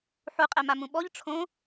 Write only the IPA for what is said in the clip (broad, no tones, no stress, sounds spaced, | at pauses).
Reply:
ħ u qʼ ɛ m a m ũ ɓ ɔ ʎ ʈ͡ʂʰ õ